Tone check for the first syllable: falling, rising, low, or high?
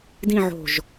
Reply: falling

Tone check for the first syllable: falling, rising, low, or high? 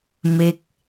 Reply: falling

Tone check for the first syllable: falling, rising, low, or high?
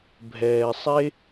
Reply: low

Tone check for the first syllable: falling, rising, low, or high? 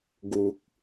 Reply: low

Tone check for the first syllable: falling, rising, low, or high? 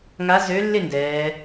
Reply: rising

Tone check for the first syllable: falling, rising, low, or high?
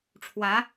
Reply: rising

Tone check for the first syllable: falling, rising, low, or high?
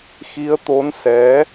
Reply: rising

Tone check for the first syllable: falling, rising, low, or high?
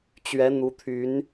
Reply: rising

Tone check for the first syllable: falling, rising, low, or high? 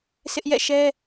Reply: high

